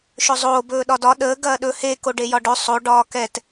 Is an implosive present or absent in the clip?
present